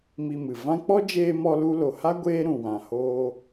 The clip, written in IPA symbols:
m i˧ m ɨ˨ v ã˧ k͡p ɔ˦ d͡ʒ eː˧ m ɔ˧ l u˧ l o˨ h a˦ ɡʷ eː˦ ɾ ũ˨ w ã˨ h oː˧

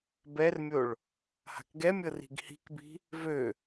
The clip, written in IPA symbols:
b ɛ r mʲ o ɭ | h a̤ k ɡ ɛ mʲ ɤ r i̤ ɡ h i̤ k b i̤ | v ø

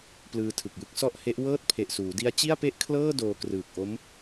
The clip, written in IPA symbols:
p l ɯː˧ tʰ ɯ˨˩ k̚ j ɯ˦˥ k̚ s ɔ˥˩ ʔ h e˦˥ ʔ w ɤː˥˩ t̚ pʰ e˨˩ ʔ s uː˩˦ d i˦˥ a̯ t͡ɕ i˥˩ a̯ p e˥˩ ʔ kʰ l ɤː˥˩ d oː˧ k r ɯː˨˩ k̚ ʔ o˦˥ m

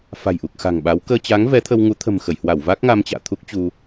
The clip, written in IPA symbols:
f a̤˨˩ j ʔ u˨˩ k̚ x a̤˨˩ ŋ ɓ a˨˦ w k əː˧ t͡ɕ aː˨˦ ŋ v ɛ˨˦ t̪ʰ ə˧ w ŋ u˨˦ t̪ʰ ə̤˨˩ m x ə˧˩ j h w a˧˩ w v a˦˥ k̚ ŋ a˧ m t͡ɕ a̰ː˧˨ t̪ʰ u˦˥ k̚ t͡ɕ u˧

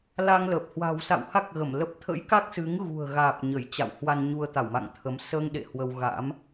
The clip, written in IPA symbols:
l a˧ ŋ l ə˨˩ p̚ h w a̤˨˩ w s a̰˧˨ w h a˦˥ k̚ ɣ ə˧˩ m l ə˦˥ p̚ t̪ʰ ə̰˧˥ j k a˦˥ k̚ s ɨ˨˦ ŋ ɣ ṳ˨˩ ə̯ ɣ aː˨˩ p̚ ɲ ə˧˩ j t͡ɕ a̰˧˨ w h w a˧ n ɲ u˧ ə̯ t̪ a˧˩ w m a̰˧˨ ŋ t̪ʰ ə˨˦ m s əː˧ ŋ ɗ ḛ˧˨ h w ə˧ w ɣ a̰˧˥ m

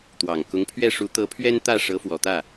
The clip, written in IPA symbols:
t̪ w ɑ˨˩ ŋ k ʊ˧˥ ŋ pʰ ɥ ɛ˥˩ ʂ u˧˥ t̪ ɤ˧˥ pʰ ɥ ɛ˥ n t̪ ä˥˩ ʂ ɤ˧˥ f w ɔ˨˩ t̪ ä˥˩

